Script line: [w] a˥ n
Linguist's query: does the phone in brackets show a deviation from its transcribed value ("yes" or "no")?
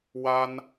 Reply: no